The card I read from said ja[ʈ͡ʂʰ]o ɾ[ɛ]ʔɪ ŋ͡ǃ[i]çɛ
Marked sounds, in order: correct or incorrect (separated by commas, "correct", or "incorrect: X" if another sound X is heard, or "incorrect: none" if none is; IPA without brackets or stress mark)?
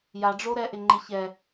incorrect: ɖ͡ʐ, correct, incorrect: ɪ